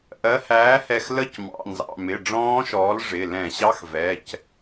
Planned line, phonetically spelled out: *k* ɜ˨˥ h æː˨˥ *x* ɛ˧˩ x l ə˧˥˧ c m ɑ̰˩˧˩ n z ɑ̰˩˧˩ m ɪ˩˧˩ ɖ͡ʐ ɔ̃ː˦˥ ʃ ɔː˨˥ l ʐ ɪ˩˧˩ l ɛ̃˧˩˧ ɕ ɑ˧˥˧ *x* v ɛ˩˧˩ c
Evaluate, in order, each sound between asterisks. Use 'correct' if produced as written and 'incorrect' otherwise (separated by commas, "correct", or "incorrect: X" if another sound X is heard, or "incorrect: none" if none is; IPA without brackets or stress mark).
incorrect: ʔ, incorrect: h, correct